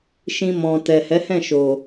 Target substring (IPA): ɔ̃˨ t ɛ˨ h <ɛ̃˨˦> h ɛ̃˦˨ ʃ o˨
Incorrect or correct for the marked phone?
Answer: incorrect: ɛ˨˦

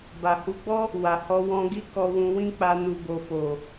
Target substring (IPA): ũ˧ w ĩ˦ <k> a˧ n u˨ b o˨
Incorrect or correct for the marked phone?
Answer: incorrect: k͡p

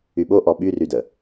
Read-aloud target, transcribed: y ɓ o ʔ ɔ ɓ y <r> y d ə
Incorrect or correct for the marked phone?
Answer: correct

